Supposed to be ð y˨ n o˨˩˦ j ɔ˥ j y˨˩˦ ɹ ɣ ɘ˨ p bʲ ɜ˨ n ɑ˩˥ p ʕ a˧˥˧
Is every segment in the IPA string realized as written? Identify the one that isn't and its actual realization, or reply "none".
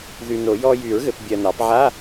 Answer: none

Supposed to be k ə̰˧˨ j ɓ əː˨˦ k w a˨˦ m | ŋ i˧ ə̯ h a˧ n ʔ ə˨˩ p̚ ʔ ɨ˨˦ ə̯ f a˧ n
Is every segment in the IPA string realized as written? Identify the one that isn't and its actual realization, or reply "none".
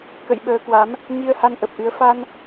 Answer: none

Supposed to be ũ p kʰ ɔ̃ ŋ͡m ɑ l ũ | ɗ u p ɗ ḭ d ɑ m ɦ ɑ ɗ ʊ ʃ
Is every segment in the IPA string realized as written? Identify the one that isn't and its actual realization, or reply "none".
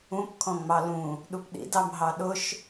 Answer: none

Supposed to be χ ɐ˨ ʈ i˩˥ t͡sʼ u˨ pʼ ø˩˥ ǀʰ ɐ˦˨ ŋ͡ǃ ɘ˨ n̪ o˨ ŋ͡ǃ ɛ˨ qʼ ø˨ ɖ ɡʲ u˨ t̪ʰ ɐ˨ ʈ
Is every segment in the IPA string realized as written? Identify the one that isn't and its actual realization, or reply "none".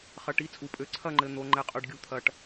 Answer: none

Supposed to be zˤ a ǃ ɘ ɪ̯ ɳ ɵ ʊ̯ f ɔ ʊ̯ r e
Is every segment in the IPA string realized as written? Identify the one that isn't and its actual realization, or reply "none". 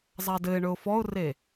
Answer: ǃ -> d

